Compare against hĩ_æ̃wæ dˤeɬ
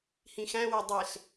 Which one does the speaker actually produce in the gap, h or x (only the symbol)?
x